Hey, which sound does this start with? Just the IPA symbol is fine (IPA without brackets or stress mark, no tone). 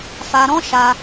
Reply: f